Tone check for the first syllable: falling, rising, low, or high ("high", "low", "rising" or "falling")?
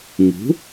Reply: rising